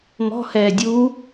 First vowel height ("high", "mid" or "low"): mid